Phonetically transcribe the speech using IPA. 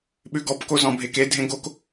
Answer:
ɓ ʉ ɡ ɔ p k o z ɔ̃ bʱ e k e dʱ ẽ ɡ o k

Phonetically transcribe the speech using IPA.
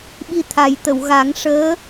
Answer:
ɓ i˧ t̪ʰ a˨˩˦ j t̪ ə˨˩˨ w ɣ a˨˩˦ ŋ ʂ əː˧˥

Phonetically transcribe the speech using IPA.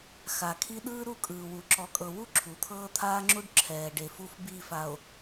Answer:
x a˨ kʰ i˦ ɗ ɯː˦ ɾ u˦˨ kʼ ɯː˨ w u˨ ǁ ɔ˨ kʼ ɤ˨ w u˦ ǁʰ u˨ t̪ʰ ɤː˦ t̪ʰ aː˦ ŋ͡ǁ u˦ ɖ ǁʰ ɛː˨ ɖ e˨ f u˦ f b i˦˨ f a˨ o̯

